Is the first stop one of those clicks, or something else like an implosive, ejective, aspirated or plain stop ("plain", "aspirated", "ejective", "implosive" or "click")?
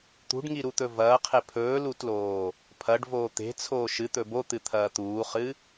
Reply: plain